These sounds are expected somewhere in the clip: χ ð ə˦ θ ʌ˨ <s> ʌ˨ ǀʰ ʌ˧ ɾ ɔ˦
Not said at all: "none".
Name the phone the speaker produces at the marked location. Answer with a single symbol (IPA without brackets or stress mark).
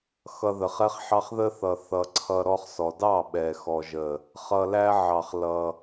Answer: θ